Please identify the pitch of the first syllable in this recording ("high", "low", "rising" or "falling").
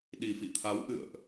low